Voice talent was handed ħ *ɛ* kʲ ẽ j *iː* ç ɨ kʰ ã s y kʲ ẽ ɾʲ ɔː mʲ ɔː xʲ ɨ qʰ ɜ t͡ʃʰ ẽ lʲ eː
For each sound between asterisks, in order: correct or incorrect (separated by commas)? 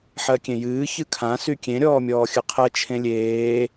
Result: incorrect, incorrect